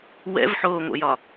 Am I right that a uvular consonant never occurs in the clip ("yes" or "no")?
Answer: yes